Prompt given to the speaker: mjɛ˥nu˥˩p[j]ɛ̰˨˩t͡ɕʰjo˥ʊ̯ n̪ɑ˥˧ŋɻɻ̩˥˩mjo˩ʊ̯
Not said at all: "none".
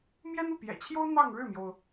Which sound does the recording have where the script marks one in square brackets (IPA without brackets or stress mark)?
j